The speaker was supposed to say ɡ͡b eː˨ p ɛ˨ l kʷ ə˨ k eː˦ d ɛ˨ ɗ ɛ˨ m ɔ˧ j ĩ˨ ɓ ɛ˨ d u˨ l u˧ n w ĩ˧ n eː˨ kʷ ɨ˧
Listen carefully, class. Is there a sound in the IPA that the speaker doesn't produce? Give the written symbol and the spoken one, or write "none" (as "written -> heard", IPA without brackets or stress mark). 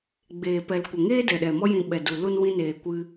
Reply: k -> ŋ